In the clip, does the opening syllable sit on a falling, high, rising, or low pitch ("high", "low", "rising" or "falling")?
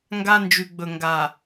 high